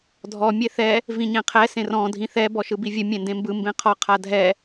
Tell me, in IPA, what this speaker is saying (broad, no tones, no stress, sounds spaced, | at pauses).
dʱ ɔ mʲ e θ ɛ | v ĩ ɲ ẽ qʰ ɛ s ẽ r ɔ̃ dʱ ĩ θ ɛ b ɔ ʃ ɯ b i vʲ ɨ mʲ ẽ n d ẽ m b ɯ m b ẽ qʰ ɔ qʰ a dʱ ɛ